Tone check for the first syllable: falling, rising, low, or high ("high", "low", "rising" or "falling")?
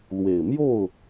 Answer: low